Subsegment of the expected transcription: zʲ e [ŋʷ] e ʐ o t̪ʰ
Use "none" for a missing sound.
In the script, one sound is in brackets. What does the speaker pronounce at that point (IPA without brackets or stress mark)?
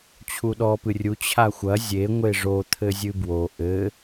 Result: ŋʷ